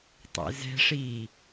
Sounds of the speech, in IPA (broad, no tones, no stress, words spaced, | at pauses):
tˤḛzɛ̤ʂiː